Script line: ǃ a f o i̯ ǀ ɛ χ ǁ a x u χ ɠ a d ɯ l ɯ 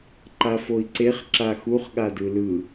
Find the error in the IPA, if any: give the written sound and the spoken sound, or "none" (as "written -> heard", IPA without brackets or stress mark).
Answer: ɛ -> e